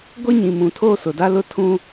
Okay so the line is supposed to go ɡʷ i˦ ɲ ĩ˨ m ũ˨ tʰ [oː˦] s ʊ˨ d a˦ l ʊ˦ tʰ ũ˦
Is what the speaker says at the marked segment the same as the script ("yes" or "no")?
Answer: yes